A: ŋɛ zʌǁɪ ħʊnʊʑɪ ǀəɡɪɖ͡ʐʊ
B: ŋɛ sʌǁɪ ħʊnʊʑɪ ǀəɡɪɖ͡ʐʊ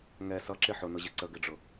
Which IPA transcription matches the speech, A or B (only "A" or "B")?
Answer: B